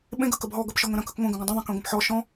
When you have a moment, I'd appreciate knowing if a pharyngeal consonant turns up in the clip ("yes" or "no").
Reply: yes